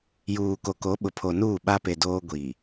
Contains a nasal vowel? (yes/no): no